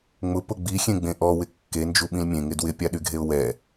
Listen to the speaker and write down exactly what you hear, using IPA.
ŋ͡mʊpʊ ɡ͡bixʲẽɡ͡bẽ ʔɔwɪ kːend͡ʒuɓĩl mʲẽŋɪ dwɪpʲaɗyɡʱeʊ̯ wɛ

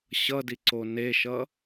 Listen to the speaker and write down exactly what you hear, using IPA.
ɕʌdiǀo neʃʌ

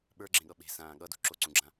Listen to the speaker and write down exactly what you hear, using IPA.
ɓə˞ɡ͡ǁẽɠʌ ɓe̤sãː ɠʌdṳ ǁoǀũɡ͡ǁã

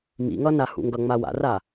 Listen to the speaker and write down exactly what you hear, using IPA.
mḭŋʌ nahṵŋɡʌŋ͡ma wa̰ra

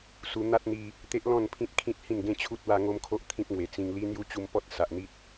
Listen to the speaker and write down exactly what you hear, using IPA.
su˧n̪a˦t̚n̪i˧ | t̪e˦ʔlɔ̃˥˧npʰĩ˦t̚ kʰĩ˦t̚hĩ˥˧nɡẽ˦t͡ɕʰu˦t̚ wa˦ŋo˦mkʰo˦ʔ t̪ʰĩ˦p̚ŋwe˨˩t͡sĩ˧ŋ li˦n̪ju˦ t͡ɕu˧mpɔ˦t̚ sa˨ʔn̪i˦t̚

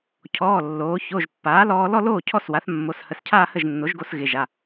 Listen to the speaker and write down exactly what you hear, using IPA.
cʰɔː˩˧˩lːoː˩˧ço˩˧˩ʒpːaː˩˥ lɔː˧lɔ˥˧loː˥˩cʰɔ˥˩s wa˩˥θ mːo˩˧˩shə˩˧˩scʰaː˥˧hə˥˩ʒ nːo˩˥ʒɡo˧sɣɪ˩˧˩ ʒa˩˧˩

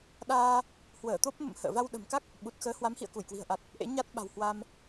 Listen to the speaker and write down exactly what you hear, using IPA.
ɗaː˧ | hwəː˧˩t̪o˦˥p̚ mə̰˧˨m hə̰ː˧˨ va˧wɗə̤˨˩mka˦˥k̚ | ɓu˨˩t̚ xəː˨˦hwa˨˦mhḭ˧˨ə̯ ku˧˩jkwi̤˨˩ə̯ʔa˨˩t̚ | ʔḛ˧˥ɲa˦˥t̚ɓa̤˨˩w hwa˧m

